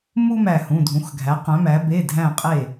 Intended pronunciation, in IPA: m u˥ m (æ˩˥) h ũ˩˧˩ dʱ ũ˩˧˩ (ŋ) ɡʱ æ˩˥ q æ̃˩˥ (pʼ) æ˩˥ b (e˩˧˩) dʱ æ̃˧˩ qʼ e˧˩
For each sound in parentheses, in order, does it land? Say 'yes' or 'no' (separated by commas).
no, no, no, yes